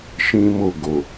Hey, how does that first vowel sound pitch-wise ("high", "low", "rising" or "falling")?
high